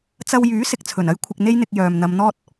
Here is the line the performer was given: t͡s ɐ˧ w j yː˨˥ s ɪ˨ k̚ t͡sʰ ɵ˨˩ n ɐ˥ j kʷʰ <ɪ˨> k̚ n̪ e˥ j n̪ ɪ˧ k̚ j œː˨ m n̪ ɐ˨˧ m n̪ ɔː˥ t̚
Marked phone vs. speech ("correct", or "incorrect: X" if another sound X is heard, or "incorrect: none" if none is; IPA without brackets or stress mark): incorrect: ɪ˧